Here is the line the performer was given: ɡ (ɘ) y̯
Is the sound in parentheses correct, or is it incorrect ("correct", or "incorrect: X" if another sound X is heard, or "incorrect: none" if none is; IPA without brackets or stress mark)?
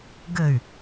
correct